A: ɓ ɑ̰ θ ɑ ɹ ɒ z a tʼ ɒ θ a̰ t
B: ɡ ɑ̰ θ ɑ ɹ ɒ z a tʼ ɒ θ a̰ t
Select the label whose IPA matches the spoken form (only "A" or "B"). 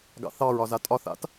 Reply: B